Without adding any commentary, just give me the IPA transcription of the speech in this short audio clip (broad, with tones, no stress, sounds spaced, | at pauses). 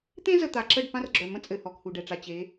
t̪ ẽ˦ z ə˨ t̪ a˨ ǁ ə˦˨ ɖ p ã˦ r ɡ͡ǁ œ˨ m ə̃˦ t͡sʼ ɘ˨ h ɔ˨ k h u˨ ɖ ɛ˨ ʈ͡ʂ a˨ t͡ɕ e˨˦